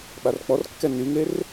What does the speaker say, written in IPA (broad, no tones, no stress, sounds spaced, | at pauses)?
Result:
ɓ a r k͡p ɔ r kː ɛ n y ŋ e r